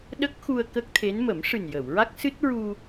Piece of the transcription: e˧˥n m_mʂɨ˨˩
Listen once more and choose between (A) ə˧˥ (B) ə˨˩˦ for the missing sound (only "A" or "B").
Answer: B